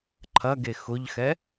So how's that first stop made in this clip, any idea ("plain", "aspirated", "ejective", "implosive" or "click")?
click